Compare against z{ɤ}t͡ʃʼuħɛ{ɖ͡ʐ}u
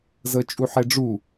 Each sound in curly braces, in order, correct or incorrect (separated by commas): correct, correct